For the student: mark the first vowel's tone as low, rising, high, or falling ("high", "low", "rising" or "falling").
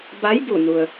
rising